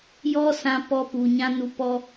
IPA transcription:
jɔ˦sã˧ pɔ˧ pu˨ɲã˧ nu˨ pɔ˧

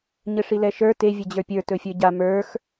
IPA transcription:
ɲɘʂilɛʃə˞ te vʲɘd͡ʑə˞pʲə˞ tɵfʲə˞ɟa mə˞x

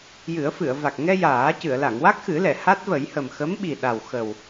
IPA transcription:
jɨ˨˩˦ə̯fɨ˨˩˨ə̯va˨˩k̚ ŋɛ˧ jaː˨˩˦ cɨ˨˩˨ə̯la˨˩˨ŋ wa˦˥k̚xɨ˨˩˦lɛ˨˩˨ ha˦˥t̚və˨˩˦jhə˨˩m xə˧˥mɓi˨˩ɗa˨˩w xə˨˩w

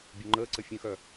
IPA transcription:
bʲoŋ͡ǃəːǀə fʲə̃xœ

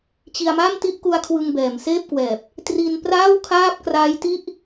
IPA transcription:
t͡ɕi˧a̯ma˥˩m ti˥˩ʔku˦˥a̯kʰwɯ˧ŋbɛː˩˦m seː˥˩p̚kwɛː˨˩p̚ | tri˧n praː˥˩wkʰaː˥˩p̚ kraː˦˥j ti˥˩ʔ

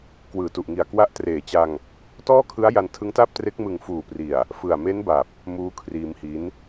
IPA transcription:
kwɯː˨˩tu˨˩ʔŋi˨˩a̯kwa˦˥ʔ treː˨˩t͡ɕa˧ŋ | tɔː˥˩kʰɯ˦˥a̯ ja˧ntʰɯ˦˥ŋtaː˥˩p̚tre˦˥k̚ mɯ˨˩ŋfuː˨˩pri˨˩a̯ | fɯ˨˩a̯me˦˥nba˨˩p̚ | muː˦˥kʰriː˧mhi˦˥n

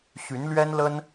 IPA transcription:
ɕy˨˦nlɥɛ˦nlə˦n

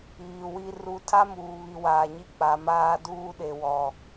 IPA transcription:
iː˨wi˦ ru˦ tʰa˦muː˨βi˨ waː˨ɲi˦ k͡pa˨maː˦duː˦ ɗe˨wɔ˨

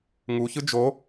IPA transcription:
ŋu çɯd͡ʒo

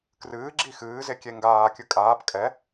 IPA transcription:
krɨː ɡ͡ǁixɨːze kʲeŋɡaːkʲɨ kʼaːp kʼɛ

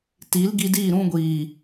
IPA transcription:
ti˨˦l ɡi˧diː˦˨ ɾũ˧ɡʷiː˨

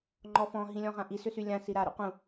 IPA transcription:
ŋ͡ǃɔfɔ̃ ɦĩlʲɔ̃ʁãʔi sʏsylʲã siɾa ɾṵqũ

